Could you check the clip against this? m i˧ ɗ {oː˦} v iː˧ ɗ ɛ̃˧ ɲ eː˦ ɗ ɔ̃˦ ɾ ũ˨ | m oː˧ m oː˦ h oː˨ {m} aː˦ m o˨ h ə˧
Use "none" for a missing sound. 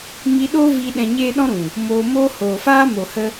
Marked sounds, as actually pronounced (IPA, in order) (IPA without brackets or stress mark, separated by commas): oː˦, f